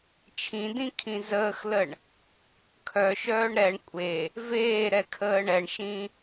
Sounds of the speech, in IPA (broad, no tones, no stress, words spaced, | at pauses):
t͡ʃʰĩdĩ kʰĩzəːxləɳ | kʰœʃœːɳ ɾɛɳ kʷʼe | veːɾɛ kʰəːɳɛɳʃĩ